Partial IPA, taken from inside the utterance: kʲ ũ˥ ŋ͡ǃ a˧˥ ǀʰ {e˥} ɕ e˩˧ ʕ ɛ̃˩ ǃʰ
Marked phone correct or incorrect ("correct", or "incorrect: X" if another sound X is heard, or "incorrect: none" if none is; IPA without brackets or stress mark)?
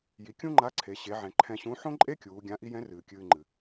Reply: incorrect: e˩˧